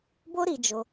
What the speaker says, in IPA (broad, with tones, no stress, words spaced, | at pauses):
bo˦ɾi˧d͡ʒo˧